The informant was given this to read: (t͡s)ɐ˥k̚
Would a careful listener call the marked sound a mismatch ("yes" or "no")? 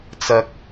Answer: no